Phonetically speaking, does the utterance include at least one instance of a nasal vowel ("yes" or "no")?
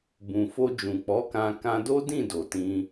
yes